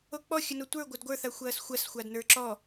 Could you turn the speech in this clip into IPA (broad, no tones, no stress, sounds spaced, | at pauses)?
o k͡p ɔ xʲ ɵ n o tʷ ə˞ ɡʷ ɘ d ɡʷ ə˞ θ a xʷ ɐː s xʷ ɐ s xʷ a d n ə˞ ǁ ɔ